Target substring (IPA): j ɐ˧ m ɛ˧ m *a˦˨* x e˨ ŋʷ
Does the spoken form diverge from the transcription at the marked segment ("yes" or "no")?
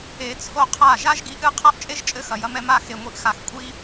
no